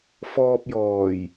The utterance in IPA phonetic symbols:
f ɔː˧ p̚ j ɔː˨˩ j

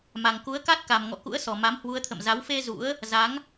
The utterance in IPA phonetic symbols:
m a˨˩ ŋ k u˨˦ ə̯ k a˦˥ t̚ k a˨˩ m ŋ ɔ̰˧˨ k ṵ˧˥ ə̯ s ɔ˨˩ m a˨˦ m h w u˨˦ ə̯ t̪ʰ ə̰˧˨ m z a˨˦ w f e˧ z ṵ˧˥ ə̯ | z a˨˦ ŋ

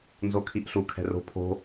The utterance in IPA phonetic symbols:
n z o kʰ i ʔ ɬ u kʰ ɛ̤ r o̤ pʰ o̤

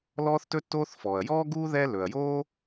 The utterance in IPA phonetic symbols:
l ɔː˥ θ t ɵ˥ tː oː˥ θ f ɔː˩ ɐ̯ j ɔː˥ ɡ uː˥ ð ɛ˥ l ɵ˩ ɐ̯ j oː˥

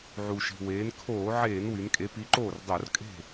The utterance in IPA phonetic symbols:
ʕ u˩ ʃ i̤˩ w eː˩˧ n kʰ oː˧˩˧ ʕ eː˧˩˧ n w y˩˧ n kʼ e˨˥ p i˨˥ ǃ oː˥˩ r dˤ o˧˩˧ r kʼ e̤˥˩

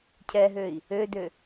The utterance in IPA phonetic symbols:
cʰ ɛ ɦ ø i̯ | ø d ø

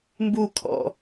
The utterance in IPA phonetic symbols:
m b u kʰ ɔ̰

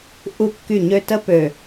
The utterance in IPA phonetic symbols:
ʔ u˦ kː y˦˨ ɲ ø˦ t ə˦ p ø˨

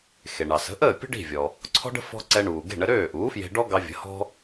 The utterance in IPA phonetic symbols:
x e˩ ɳ ɑ˩ s ə̤˩˥ ʔ əː˥˩ pʲ ə̤˥ ɖ i̤˥˩ vʲ ɔ˩ | ǀʰ ɔ̤˥ ɖ ə̤˥ f ɔ̤˧ ǀ ɛ˧ ɳ uː˩ ɡ e̤˥˩ ɳ ə˧ ɾ øː˥˩ ʔ uː˩˥ f j e̤˧ ɖ ɔ˥ ɡ ɑ˧ vʲ ə̤˩˥ h ɔ̤˥

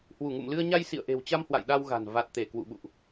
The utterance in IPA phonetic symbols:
h w u˧˩ ŋ ṵ˧˨ m l ɨ˧ ə̯ ɲ a˧ j s ḭ˧˨ ə̯ ʔ e̤˨˩ w t͡ɕ a˧ m h w a̰˧˨ j ɗ a˧ w ɣ a̤˨˩ n v a˨˩ t̚ t̪ e˧˩ k w ṵ˧˨ ɓ ṵ˧˨ ʔ

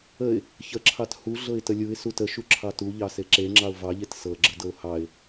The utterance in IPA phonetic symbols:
ə ɪ̯ | ç ə ǁʰ ɑ t h u ɮ ɤ ɪ̯ t ə lʲ u ɪ̯ s u t ə ʃ u ǁʰ ɑ t u ʎ ɑ s e ǁ e ŋ͡ǁ ɑ ʊ̯ v ɑ ʎ e t s ɤ ɡ͡ǁ ə d ɤ ʊ̯ h ɑ ɪ̯

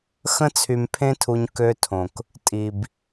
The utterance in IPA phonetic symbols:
x ə̃˦ t͡sʰ y˧ m pʰ ẽ˦ tʰ u˧ ɲ k ø˧ tʰ õ˨ k | tʼ i˨ b

